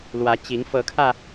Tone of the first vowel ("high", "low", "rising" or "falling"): rising